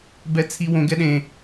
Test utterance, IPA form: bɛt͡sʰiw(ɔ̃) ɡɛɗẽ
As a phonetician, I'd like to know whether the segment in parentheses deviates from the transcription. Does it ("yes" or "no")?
yes